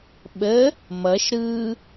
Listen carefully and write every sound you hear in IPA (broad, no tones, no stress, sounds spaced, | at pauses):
ɓ ə | m ʌ ʃ ɾ ɯ